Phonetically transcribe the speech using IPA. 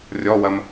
rʲ ɔ w ɐ m

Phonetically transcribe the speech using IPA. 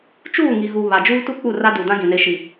t͡ʃ uː˦˨ ŋ i˨ ɣ u˨ β a˨ d͡ʒ uː˦ t u˦ k͡p u˦˨ r a˦ d u˨ d ã˦ ɡ ĩ˨ n e˨ ʃ i˨

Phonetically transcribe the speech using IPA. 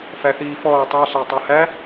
f æ θ iː f ɔː tˤ a ɬ æ tˤ a h æ

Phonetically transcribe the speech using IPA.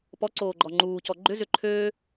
p ɔ ǀ oː ɡ͡ǃ ɔ ŋ͡ǃ uː c ɔ ɡ͡ǃ ʏ z ʏ ǃʰ øː

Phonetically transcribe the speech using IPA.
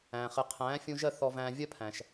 æ̃˩ χ ɪ˩˥ qʰ æ̃ː˩˥ fʲ ũ˧ ʒ ɜ˥˩ θ ɔ˧ v æ̃ː˧ vʲ ɜ˥ pʰ æ̃˩ ʃ

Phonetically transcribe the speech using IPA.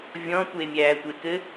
vʲ ɔ̃ tʷ e mʲ æː tʷ e k ɘ

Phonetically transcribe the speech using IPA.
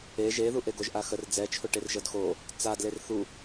e ʒ e ð u ʔ e ɡ o ʒ ʔ a x ə r d͡z ɛ t͡ʃʰ o ʈ e r ʒ ɤ d x o | t͡s a d l e r θ u

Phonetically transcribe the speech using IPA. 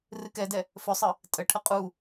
r ɨ k ɛ d ɛ | f ɵ sˤ ɨ | tʼ ə ʈʰ ə qʼ u

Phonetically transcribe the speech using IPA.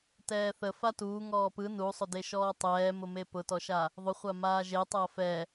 t ɛː θ ə f a t uː ŋ ɔː p ɯ n u sˤ ʊ d e ʃ ɔː tˤ ɛː m ʊ m e p ʊ t ɔ ʃ a | ðˤ ʊ χʷ a m aː ʒ e tˤ aː f ɛ

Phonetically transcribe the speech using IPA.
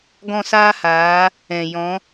ɡ ɔ̃˦˨ s aː˦ h aː˨˦ | ɛ̃˨ j ɔ̃˨˦

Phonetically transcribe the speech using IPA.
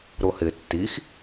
ɾ ʊ h ɪ tː i x

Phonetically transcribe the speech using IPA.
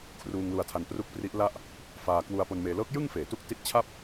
kʰ r uː˧ ŋ l u˧ a̯ tʰ a˧ n p r u˦˥ k̚ p r i˦˥ ʔ l a˥˩ ʔ | f aː˧ k w u˧ a̯ p o˧ n m eː˧ l ɤː˦˥ k̚ j ɯ˥˩ ŋ f eː˨˩ t u˦˥ k̚ t i˦˥ t̚ t͡ɕʰ a˥˩ p̚

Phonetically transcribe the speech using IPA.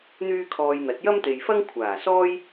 n̪ yː˥ kʰ ɔː˧ j n̪ ɐ˨˥ t̚ j ɐ˥ m t̪ e˨ j f ɐ˥ ŋ kʷʰ aː˨˩ s ɔː˥ j

